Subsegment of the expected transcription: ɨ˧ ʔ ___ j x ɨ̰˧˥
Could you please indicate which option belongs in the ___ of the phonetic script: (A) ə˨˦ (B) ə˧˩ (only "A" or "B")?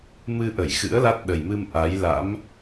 B